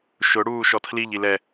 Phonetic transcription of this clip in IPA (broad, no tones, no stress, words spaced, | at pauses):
ʃʊ ɽuːʃɔtʰliʎ ilɛ